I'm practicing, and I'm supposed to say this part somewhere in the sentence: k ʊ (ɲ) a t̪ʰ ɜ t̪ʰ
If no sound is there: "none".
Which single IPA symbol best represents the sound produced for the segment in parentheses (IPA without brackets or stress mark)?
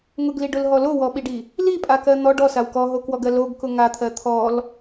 ŋ